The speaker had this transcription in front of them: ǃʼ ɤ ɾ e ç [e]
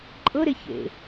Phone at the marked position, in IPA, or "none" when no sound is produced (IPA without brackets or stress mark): ḛ